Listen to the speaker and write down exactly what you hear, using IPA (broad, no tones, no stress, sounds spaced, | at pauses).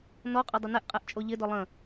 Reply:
n ɔ qʼ ʏ dˤ ə n ɛ ʔ qʼ ɛ ʔ t͡ʃʼ o ʎ ɪ d ɔ lˠ ə̃